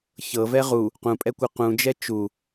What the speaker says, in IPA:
çɤvɛ ʁu | qũpʼɛkʷɤ qũd͡ʒɛ t͡ʃu

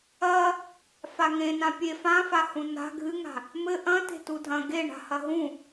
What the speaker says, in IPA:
ɐ | faŋẽ nãpʲe fãfahũ na̤ ɡʱɨŋa̤ | mɘ ʔɐ̃ te̤tudʱɐ̃ ɡeɳa̤ hɐɦũ

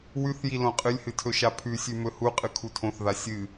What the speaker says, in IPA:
wʉθji lõqʼɨlʲhɨ tʰɵʃapʰʉsʲʉ mɵhuqʼɨ kʰutʰõθða sʲɨ

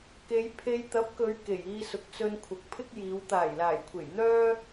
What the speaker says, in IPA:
ke˨˧jpʰe˧j t̪ɐ˨˥p̚kɵ˨˧ɥ ke˨˩jiː˧sʊ˨k̚t͡sɵ˧n kʷʰɐ˨k̚pʰɪ˥k̚jiː˨˧w t̪aː˨˩jlaː˨˩jkʷʰe˨˩j n̪œː˥

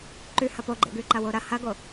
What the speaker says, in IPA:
ǃʉ hɐpoɡ͡ǃḛ ɡʉǃɐwoɾɐ hɐɡo

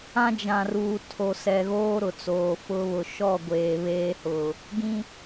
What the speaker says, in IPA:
ã˦d͡ʒã˨ ruː˨tʰo˨ sɛ˨ɣoː˦ ɾʊ˨t͡soː˨fʊ˦ βʊ˨ʃɔ˦˨ ɡʷeː˨βeː˦hʊ˨ | ɡĩ˦

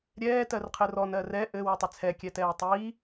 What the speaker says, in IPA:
ɾʲɛː tɜrqʰɘrɔn ɜrɛ ʔɘ wotˤɘt͡sʰɛ kʲɛtɛːtˤiː

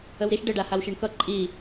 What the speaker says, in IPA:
əwɾiʃ ɖəɖahaw ʃeɳkʌ ǃʼi

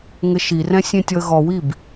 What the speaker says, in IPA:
ŋɘʃirɛ̃ sʲẽtʲɔə̯ɣɔwib

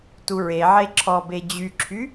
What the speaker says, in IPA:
tuɹeʕe ǁʰɔbe d͡ʑyǁʰy

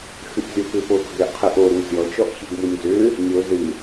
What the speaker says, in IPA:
xɨʔzʲɔpʏpo ɡɔɡɾɛʔqʰɨʔ oɾu zʲɔt͡ʃɔʔ çiɡmunʲzʏ | nʲo zɨ

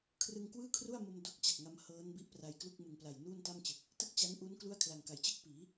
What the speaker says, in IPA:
kʰrɯ˧ŋkwɯː˥˩kʰru˥˩a̯mo˧m do˦˥k̚t͡ɕa˨˩k̚ ŋa˦˥m hɤː˦˥nbi˦˥ʔ pra˧jklu˥˩k̚ mɯ˨˩ŋpla˨˩j nuː˥˩nta˥˩mt͡ɕɯ˨˩k̚ | tɯ˥˩k̚t͡ɕa˦˥nʔu˦˥n klu˥˩a̯kʰla˨˩ŋka˩˦j t͡ɕɯ˥˩k̚piː˩˦

